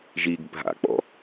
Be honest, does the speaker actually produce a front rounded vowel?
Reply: no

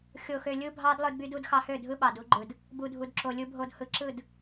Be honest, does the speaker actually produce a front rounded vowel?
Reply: yes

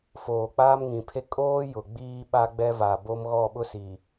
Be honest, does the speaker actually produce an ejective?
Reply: yes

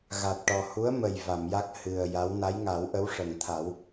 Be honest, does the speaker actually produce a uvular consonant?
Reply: no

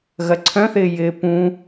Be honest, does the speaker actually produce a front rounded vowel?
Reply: yes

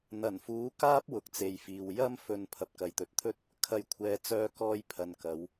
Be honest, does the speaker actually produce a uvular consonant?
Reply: no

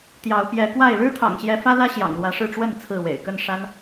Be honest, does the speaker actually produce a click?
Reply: no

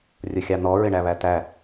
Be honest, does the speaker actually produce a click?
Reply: no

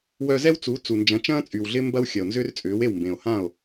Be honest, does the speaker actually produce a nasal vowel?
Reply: yes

